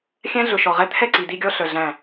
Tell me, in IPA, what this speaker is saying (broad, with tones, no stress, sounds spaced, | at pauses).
xʲ æ̃˦ ɮ ɵ˨ ʃ ɔ˨ ʁ ɛ˦ t̪ʰ ɛ˦˨ ǀ i˨ d i˦ ɡʲ ɔ˦ ɬ œ˨ ɮ æ̃˦˨